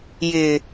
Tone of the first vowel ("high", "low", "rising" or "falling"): low